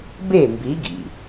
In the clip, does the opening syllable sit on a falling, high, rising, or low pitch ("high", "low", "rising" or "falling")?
falling